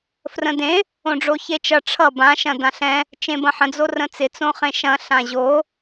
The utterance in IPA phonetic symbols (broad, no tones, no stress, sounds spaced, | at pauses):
f r ə̃ d ẽ | õ ɖ͡ʐ o ç e t͡ʃ ʌ ʈ͡ʂʰ ʌ b ã ʃ ɐ̃ d ã ɬ ɛ̃ | t͡ʃ ẽ b ɐ̃ ħ ə̃ d͡z o r ə̃ t͡s ɪ t͡s õ χ ẽ ʃ ɐ̃ ɬ ã ʑ o